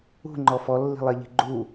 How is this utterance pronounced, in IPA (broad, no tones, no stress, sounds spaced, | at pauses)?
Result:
ṳ ŋ͡ǃ ɔ f ɔ lː i̤ lˠ e ʎ i̤ ɡ͡ǃ u